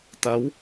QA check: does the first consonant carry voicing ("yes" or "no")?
no